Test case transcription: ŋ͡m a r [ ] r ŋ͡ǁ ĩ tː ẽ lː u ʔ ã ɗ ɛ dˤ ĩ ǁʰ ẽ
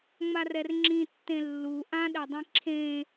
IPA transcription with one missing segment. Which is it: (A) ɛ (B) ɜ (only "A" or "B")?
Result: A